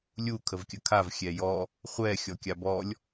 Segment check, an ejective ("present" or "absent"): absent